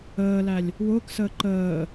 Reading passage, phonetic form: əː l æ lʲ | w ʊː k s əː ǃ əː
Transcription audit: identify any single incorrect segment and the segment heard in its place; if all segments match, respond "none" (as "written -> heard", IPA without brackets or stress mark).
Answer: none